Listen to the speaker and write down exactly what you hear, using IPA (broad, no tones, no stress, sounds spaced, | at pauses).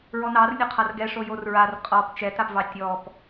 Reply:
ɹ ɔ n ɑ r nʲ ʊ qʰ a r ɡ ɛ ʂ o j o r ɹ a r qʼ ɔ p t͡ʃ ɛ t a p v ɑ tʲ ɔ p